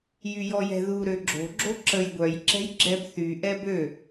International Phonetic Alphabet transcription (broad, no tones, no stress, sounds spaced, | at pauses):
j y j ɔ j ɛ̤ ð u ɾ ø ɡ͡ǁ o̤ ɡ͡ǁ o ǁ ə j ɡʷ œ j ǁ ɛ̤ j ɡ͡ǁ ɛ b θ y ʔ ɛ b ø